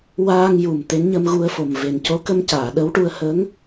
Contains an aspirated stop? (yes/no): no